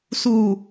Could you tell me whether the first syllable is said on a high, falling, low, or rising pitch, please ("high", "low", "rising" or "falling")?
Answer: low